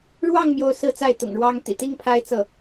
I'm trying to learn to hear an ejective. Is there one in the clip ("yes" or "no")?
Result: no